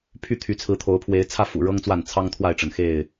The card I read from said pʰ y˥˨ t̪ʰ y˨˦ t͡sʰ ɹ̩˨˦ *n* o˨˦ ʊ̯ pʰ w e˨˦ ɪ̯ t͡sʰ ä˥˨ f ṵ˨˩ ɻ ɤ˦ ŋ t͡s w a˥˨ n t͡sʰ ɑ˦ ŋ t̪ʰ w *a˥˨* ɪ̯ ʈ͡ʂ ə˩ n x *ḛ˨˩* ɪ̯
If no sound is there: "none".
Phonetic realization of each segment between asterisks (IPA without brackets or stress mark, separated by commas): t̪ʰ, a˥˨, e˥˨